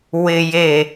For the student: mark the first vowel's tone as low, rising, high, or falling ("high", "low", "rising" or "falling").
low